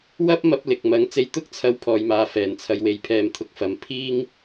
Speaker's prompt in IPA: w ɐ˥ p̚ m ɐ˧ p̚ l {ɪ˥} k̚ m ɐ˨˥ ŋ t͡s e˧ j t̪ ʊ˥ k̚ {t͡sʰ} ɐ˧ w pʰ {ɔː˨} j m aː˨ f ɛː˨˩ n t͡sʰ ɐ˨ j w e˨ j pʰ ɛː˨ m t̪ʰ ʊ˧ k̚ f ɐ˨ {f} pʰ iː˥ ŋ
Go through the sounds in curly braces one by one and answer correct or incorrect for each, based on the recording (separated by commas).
incorrect, correct, correct, incorrect